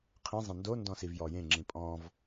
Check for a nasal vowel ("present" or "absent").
present